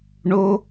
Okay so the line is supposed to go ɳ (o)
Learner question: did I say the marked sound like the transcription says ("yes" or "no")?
yes